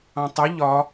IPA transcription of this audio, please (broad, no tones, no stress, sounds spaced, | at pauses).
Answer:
ɑ̃ tˤ ʏ ʎ ɒ